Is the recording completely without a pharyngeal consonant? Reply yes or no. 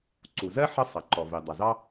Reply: no